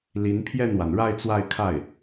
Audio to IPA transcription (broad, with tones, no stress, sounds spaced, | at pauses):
l i˧˥ n pʰ j ɛ˥˩ n w a˩ n ɻ a˥˧ ɪ̯ t͡s w a˥˧ ɪ̯ kʰ a˥˩ ɪ̯